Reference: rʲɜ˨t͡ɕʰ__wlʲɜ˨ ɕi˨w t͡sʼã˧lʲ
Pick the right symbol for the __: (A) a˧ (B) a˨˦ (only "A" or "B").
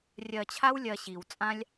A